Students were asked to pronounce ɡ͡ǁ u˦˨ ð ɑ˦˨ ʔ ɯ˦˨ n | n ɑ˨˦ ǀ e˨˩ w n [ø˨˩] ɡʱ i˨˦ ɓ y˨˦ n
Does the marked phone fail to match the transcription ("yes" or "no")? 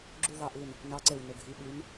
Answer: no